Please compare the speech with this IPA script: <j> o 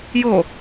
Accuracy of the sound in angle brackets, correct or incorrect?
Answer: correct